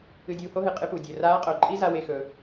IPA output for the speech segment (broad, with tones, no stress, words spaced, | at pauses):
ɨ˧dʲuː˧ho˥ɦɨ˩ qʼɨ˧pu˩ dʲɵ˩raː˧˥ qʼo˩ ǃʼi˥za˧we˧xɵ˩˧